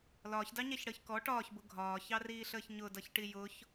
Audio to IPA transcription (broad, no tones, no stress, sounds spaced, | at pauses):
l ɒː ç d ɑ ɲ æ ç ɽ əː ç k ɔ ʈ ɒː ç b ʊ ɡʱ ɒː ç ɑ r iː ɬ əː ç ɲ ʊ d ʌ ç ʈ i j ʊ ç